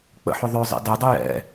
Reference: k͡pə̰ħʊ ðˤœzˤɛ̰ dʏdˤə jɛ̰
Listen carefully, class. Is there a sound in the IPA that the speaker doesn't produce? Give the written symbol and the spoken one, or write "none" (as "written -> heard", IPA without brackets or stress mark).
ʏ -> ɛ